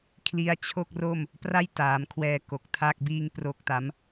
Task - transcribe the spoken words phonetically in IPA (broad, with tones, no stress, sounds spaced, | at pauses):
kʰ l i˦˥ a̯ t͡ɕʰ o˥˩ k̚ r o˥˩ m | p r a˥˩ j t aː˩˦ m kʰ w ɛː˧ k o˨˩ k̚ tʰ a˥˩ k̚ b iː˥˩ ŋ p r o˥˩ k̚ t a˦˥ m